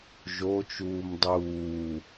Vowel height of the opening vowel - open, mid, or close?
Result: mid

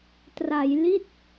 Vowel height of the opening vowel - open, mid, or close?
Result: open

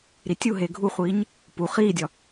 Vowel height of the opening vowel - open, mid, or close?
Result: close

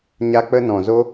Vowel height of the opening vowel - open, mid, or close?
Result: open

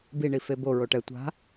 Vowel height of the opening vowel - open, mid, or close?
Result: close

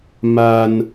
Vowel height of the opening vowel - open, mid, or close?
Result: open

